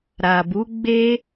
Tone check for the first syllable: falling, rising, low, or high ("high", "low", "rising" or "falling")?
low